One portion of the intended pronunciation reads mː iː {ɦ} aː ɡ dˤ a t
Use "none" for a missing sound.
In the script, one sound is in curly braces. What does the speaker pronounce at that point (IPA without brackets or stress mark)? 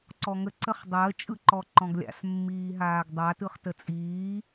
ɦ